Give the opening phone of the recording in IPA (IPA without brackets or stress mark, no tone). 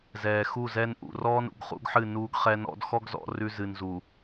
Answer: z